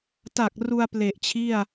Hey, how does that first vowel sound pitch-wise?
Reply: low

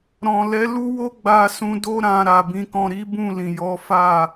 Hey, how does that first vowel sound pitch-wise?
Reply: low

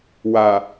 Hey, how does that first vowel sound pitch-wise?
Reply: low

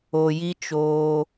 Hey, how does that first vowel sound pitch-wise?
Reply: low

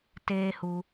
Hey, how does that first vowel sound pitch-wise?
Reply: high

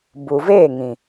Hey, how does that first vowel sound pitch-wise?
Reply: low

